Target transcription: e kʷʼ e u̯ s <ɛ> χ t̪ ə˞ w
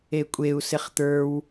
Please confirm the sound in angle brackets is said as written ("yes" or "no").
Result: no